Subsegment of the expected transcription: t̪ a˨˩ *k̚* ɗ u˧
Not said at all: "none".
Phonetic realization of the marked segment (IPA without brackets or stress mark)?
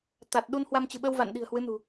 t̚